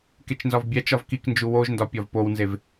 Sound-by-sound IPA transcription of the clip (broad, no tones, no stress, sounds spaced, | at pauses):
k e t͡ʃ n z ɒ v bʲ æ t͡ʃ ɒ v k i k n d͡ʒ u w o ʒ n d ɒ pʲ ɒ v p o w n z e v